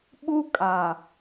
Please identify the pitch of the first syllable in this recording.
high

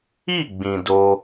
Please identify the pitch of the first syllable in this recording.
falling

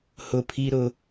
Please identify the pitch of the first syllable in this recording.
high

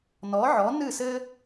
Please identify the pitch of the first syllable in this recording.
rising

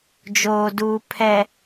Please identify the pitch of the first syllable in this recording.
low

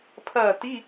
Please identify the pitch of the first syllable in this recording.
falling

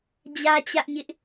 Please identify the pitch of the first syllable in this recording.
high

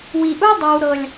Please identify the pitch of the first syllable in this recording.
low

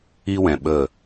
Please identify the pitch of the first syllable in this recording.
high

